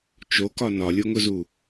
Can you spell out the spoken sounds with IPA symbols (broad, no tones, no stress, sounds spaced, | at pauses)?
t͡ʃ o k ɒ n ɒ lʲ o ŋ ʊ z u